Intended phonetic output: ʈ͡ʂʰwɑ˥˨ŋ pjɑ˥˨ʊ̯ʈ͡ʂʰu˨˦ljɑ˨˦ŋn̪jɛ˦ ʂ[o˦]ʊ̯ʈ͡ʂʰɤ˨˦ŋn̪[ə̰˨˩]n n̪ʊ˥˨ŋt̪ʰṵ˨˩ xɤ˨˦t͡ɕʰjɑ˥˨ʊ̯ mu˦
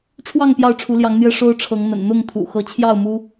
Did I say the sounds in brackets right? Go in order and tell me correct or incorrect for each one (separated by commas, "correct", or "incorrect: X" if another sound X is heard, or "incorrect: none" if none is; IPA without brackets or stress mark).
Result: correct, correct